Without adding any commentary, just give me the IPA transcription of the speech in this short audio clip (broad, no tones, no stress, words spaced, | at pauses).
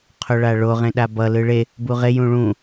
qʰoɭaɭo ʁẽɗabʌ lɯɭe | buʁe jũɭũ